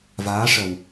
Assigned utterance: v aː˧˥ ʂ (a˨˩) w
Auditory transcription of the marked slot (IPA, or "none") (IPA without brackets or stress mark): ə˨˩